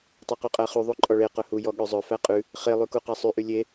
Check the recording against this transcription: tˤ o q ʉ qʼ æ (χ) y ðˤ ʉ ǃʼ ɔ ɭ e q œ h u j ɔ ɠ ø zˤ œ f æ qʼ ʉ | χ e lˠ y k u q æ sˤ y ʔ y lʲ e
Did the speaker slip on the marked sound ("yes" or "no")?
no